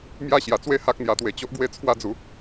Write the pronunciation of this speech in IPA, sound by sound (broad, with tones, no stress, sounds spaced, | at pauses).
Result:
m j a˥˧ ɕ j a˨˩ t͡s w e˥˧ h a˦ k̚ n̪ j a˧ t̪ w e˧ t͡ɕ o˦ ʔ ɡ w e˥˧ t͡sʰ w a˦ d͡z u˨˦